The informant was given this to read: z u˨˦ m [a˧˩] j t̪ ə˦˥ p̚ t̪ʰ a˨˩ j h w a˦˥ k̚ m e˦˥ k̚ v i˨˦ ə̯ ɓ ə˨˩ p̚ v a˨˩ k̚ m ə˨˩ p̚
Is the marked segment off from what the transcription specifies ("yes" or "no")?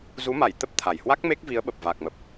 no